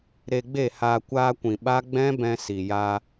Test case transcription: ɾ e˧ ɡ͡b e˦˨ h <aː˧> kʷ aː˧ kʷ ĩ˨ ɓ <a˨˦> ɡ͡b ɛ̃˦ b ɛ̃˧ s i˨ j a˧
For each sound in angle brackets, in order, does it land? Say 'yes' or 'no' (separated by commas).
yes, no